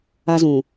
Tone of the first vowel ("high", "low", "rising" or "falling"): high